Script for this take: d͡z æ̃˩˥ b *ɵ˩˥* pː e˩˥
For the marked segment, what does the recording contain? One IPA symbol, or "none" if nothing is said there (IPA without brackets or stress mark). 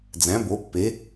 o˩˥